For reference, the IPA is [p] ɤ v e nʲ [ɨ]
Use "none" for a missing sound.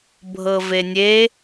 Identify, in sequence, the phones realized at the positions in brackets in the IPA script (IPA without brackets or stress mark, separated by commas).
bʱ, e